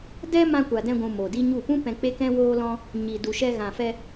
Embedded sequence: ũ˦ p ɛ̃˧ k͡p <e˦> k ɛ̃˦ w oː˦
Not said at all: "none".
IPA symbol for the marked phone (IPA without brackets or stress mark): e˦